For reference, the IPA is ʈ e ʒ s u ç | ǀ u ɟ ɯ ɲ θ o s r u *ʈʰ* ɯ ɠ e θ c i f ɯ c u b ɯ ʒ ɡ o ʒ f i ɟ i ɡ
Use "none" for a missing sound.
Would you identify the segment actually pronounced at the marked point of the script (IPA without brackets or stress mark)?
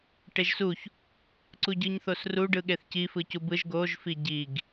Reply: ɖ